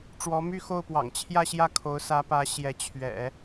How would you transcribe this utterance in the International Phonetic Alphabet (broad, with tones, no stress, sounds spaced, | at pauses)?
ʈ͡ʂ w ɔ˧˥ m y˥˧ x o˥˩ ʊ̯ p w ɑ̰˨˩ ŋ t͡ɕʰ j ä˥˧ ɕ j ä˥˩ kʰ o˧˥ ʊ̯ s ä˧˥ p ä˧˥ ɕ j ɛ˧˥ t͡ɕʰ ɥ ɛ̰˨˩˦